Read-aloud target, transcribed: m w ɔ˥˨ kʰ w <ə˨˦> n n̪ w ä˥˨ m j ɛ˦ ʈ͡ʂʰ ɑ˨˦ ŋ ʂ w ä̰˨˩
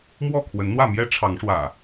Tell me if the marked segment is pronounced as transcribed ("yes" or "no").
yes